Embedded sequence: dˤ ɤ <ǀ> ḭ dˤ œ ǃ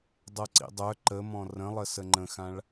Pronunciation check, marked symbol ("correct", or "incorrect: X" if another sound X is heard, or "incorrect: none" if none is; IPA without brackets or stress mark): correct